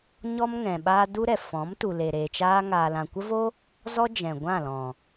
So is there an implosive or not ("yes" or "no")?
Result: yes